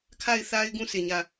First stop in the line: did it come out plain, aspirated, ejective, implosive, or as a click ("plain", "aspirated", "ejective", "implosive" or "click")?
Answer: aspirated